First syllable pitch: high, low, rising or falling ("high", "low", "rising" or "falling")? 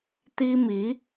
high